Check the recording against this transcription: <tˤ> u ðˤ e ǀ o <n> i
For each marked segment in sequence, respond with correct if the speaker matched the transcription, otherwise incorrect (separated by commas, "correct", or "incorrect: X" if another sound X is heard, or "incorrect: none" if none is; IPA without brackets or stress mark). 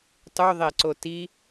correct, incorrect: t